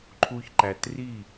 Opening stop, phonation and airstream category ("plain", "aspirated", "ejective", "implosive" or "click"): click